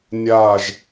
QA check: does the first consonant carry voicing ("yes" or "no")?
yes